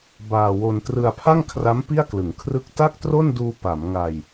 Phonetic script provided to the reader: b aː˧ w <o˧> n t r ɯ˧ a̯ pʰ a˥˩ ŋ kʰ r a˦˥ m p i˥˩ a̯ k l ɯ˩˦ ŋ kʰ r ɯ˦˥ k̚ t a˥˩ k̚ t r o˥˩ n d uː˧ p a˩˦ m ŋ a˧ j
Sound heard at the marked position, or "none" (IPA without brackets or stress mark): o˧